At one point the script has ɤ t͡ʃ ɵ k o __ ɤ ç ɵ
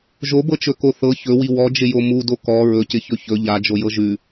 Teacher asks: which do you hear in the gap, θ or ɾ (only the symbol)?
θ